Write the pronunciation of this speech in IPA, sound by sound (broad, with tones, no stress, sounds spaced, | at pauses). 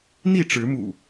n̪ i˥˨ ʈ͡ʂ ɻ̩˨˦ m ṵ˨˩